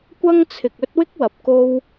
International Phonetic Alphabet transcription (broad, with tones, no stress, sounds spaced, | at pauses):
kʷ ɐ˥ ŋ t͡sʰ ɪ˨ k̚ ɵ˥ t̚ w ɪ˥ k̚ w ɐ˨ p̚ k o˧ w